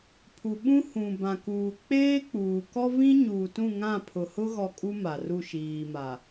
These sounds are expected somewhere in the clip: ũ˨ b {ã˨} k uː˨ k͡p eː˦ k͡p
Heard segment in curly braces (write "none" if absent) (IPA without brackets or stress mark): ã˨